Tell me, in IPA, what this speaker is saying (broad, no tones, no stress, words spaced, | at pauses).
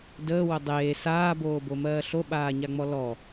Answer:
dəːwʊ dˤeː saːboːbomɜː ɬoɓaːɲaŋ͡mɔ lɔ